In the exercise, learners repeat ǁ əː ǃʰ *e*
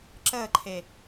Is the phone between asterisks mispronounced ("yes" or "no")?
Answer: no